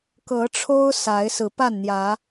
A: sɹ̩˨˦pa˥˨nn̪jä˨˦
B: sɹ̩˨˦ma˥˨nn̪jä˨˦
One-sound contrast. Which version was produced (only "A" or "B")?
A